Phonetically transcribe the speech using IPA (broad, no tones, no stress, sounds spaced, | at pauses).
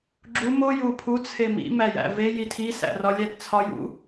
ɡ͡ǁ u m o j u pʰ u t͡sʰ e m ḭ m æ j æ̰ v e j i tʰ i s æ̰ r ɒ lʲ æ d t͡sʰ ɒ j ṵ